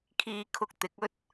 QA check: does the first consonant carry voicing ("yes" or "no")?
no